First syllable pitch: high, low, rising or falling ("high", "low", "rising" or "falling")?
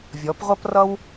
rising